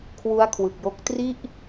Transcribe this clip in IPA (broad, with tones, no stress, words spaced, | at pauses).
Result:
kʰwu˦˥a̯kʰwɯ˨˩k̚jo˦˥k̚ tri˥˩ʔ